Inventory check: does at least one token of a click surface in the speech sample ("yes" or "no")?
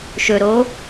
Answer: no